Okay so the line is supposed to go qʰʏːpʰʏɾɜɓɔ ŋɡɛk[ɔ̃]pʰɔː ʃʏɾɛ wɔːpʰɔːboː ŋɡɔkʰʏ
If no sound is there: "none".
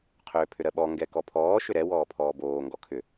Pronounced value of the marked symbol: ɔ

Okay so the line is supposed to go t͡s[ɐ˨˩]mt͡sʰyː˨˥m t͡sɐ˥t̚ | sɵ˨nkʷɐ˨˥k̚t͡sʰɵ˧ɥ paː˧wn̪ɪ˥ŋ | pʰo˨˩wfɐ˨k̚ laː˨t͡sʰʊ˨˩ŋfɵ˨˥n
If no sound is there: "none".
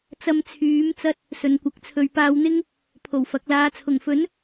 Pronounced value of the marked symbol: ɐ˧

